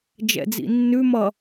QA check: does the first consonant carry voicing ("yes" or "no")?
yes